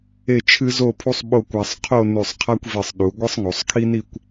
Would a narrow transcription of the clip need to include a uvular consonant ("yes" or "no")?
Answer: yes